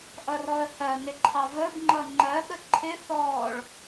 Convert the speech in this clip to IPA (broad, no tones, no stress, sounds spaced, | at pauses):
ʔ ʌ r ɔ ə̯ h ɜ n ɪ ǃʰ ɑ v ə b ŋ͡ǃ ʌ ŋ͡ǃ ɜ ɠ ə ǃʰ ɪ θ ɔː ɭ